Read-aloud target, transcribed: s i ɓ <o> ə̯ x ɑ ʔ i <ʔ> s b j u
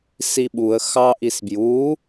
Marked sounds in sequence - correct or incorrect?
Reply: incorrect, incorrect

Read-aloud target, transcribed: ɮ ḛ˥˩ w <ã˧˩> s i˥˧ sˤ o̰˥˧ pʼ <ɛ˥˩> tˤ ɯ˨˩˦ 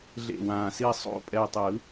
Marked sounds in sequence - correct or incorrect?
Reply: correct, incorrect

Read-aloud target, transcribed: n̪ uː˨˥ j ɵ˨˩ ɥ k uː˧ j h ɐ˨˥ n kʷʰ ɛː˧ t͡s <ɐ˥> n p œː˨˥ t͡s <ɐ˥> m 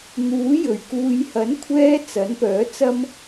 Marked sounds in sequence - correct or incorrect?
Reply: incorrect, correct

